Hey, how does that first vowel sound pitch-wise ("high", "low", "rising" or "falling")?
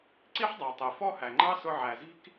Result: high